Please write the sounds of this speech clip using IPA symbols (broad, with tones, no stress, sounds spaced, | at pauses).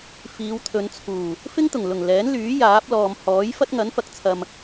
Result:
f iː˨˧ w t̪ʰ ɵ˨˧ n t͡sʰ uː˨˩ | f ɪ˥ ŋ t̪ ʊ˨˩ ŋ l ʊ˨˩ ŋ l ɛː˨˥ n l yː˨˥ j aː˨˥ p̚ l ɔː˨ m h ɔː˨˥ j f ɐ˥ t̚ ŋ ɐ˨˥ n f ɐ˨ k̚ t͡sʰ ɐ˨ m